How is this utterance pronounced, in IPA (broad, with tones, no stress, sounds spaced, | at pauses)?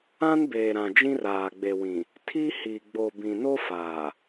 ã˦ n b eː˨ ɾ ã˨ d͡ʒ ĩ˦ r aː˨ ɡ͡b e˨ w ĩ˨ | tʰ i˦ h i˨ ɡ͡b o˨ b ĩ˨ n o˦ f aː˨